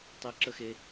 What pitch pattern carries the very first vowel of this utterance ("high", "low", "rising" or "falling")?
high